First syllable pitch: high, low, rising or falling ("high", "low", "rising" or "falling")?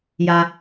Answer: low